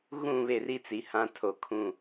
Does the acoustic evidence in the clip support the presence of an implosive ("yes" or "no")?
no